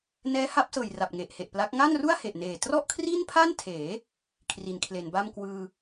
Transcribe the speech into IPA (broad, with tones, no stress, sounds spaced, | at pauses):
n ɛː˦˥ h a˦˥ p̚ s ɤː˨˩ j r a˨˩ p̚ ŋ e˨˩ ʔ h e˨˩ ʔ p l a˦˥ k̚ ŋ a˥˩ n r u˥˩ a̯ h e˨˩ ʔ n eː˨˩ t r ɔ˥˩ ʔ kʰ r i˥˩ n pʰ a˥˩ n tʰ eː˩˦ | kʰ r i˩˦ n kʰ l e˩˦ n b a˥˩ m k w ɯː˧